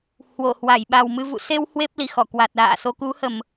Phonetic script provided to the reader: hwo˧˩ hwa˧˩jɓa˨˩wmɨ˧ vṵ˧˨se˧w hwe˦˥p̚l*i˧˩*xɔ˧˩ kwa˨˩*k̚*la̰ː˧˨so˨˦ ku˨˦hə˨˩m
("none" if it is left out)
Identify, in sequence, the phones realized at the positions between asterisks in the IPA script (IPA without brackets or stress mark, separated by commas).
i˧˩, t̚